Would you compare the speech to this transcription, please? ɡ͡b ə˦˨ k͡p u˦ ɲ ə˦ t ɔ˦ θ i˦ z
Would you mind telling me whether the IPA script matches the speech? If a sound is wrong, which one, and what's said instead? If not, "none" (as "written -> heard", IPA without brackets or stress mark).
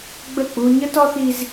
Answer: none